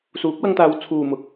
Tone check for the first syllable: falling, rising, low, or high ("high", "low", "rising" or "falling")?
rising